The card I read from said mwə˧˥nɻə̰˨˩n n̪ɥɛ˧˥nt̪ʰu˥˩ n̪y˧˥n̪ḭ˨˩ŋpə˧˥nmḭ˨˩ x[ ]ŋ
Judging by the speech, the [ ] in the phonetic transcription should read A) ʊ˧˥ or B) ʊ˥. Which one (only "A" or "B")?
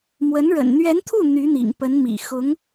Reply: A